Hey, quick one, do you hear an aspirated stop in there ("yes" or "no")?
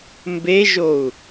no